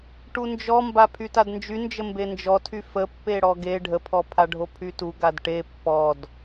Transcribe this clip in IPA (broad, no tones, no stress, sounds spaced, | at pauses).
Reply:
ʈ u n d͡ʒ ɔ m b a pʰ y t a d n d͡ʒ y n d͡ʒ ə m b e n d͡ʒ ɔ tʰ y f ə pː e ɽ ɔ ɡ e ɖʱ ə pʰ ɔ pʰ a ɖʱ o pʰ y t u ɡ a d ʈ e pː ɔ d